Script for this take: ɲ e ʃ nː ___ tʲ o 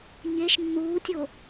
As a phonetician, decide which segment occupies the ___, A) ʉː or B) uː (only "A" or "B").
B